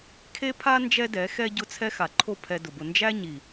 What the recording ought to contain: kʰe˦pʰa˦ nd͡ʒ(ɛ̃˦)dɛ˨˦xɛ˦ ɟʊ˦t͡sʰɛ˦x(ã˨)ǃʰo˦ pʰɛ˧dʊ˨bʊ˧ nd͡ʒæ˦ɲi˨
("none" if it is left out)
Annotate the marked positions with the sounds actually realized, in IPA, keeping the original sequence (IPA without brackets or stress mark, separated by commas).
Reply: ɛ˦, a˨